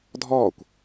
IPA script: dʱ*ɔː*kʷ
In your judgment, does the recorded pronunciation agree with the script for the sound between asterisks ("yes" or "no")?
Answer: yes